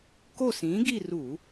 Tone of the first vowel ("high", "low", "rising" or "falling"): falling